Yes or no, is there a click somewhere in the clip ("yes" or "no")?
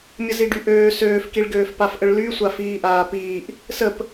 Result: no